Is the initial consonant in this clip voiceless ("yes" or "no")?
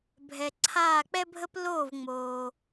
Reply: no